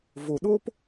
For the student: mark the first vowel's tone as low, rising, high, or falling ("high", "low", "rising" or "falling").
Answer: low